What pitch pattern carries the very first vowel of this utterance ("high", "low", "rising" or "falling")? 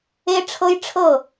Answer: high